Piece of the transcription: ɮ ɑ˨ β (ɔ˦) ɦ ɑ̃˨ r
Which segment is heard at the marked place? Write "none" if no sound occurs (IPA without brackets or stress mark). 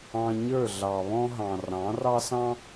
ɔ̃˦